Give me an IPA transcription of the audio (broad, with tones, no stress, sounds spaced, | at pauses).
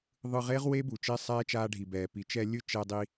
ðˤ ɯ˧ ʁ e˦ ʁ w e˦ b u˨ t͡ʃ e˦ sˤ ɛː˦ t͡ʃ aː˧ ɖʱ i˨ b ɛː˨ p i˨˦ t͡ʃ ɛ˧ lʲ ɯ˦ t͡ʃ ɛ˧ dˤ i˧